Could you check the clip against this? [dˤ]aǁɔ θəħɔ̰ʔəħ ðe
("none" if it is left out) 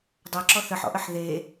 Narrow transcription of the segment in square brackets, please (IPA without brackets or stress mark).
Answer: dˤ